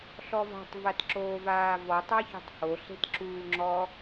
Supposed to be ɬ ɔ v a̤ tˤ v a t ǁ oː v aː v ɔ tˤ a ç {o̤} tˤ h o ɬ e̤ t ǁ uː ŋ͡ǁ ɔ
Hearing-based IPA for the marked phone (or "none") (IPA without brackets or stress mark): o̤